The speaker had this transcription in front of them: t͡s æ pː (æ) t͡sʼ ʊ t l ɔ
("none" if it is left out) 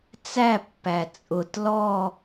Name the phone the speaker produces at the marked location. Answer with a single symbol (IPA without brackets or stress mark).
æ